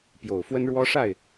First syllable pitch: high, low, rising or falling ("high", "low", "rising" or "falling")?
low